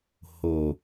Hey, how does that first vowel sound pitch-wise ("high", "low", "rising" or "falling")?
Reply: low